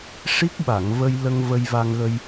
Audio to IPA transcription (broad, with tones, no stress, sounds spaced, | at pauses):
ʂ i˦˥ k̚ ɓ a˨˩˨ ŋ v ə˧ j l ə˧ ŋ v ə˧ j v a˧ ŋ ɣ ə˧ j